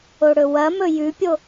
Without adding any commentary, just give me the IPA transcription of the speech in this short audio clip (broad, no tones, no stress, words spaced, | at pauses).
oɽɵwɐmɵ jʉpʲo